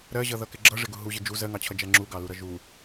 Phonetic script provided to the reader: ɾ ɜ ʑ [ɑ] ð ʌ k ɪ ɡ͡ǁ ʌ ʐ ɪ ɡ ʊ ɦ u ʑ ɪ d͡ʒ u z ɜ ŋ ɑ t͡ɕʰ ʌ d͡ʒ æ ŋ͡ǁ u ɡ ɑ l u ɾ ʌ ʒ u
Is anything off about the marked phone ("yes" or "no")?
yes